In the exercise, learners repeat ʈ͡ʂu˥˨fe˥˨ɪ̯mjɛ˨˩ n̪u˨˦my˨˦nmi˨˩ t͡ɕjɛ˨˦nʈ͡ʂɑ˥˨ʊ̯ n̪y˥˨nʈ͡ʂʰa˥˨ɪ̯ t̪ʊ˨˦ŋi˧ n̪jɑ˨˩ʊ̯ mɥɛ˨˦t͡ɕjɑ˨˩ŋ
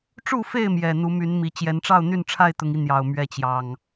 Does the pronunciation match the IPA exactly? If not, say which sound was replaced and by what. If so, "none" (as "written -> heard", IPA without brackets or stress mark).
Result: none